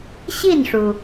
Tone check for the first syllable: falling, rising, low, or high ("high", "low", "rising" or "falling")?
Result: falling